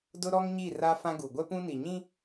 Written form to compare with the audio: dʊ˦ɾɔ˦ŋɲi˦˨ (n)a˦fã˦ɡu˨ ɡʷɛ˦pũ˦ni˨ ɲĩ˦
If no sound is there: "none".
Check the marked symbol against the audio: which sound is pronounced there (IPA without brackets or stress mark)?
r